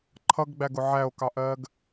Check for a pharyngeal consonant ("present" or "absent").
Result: present